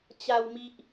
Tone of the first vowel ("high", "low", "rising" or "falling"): high